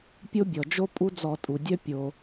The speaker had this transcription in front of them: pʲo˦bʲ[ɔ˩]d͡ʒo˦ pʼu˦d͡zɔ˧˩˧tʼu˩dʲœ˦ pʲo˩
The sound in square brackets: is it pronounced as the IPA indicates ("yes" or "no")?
yes